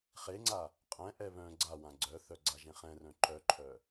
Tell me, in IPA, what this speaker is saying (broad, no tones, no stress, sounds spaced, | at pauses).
χ e ŋ͡ǀ a | qʼ ɛ̃ ʔ ɛ β œ̃ ɡ͡ǀ a w ã ɡ͡ǀ œ θ œ ɡ͡ǀ a ʒ ẽ χ ɛ̃ r œ̃ ǃ œ ǃʰ œ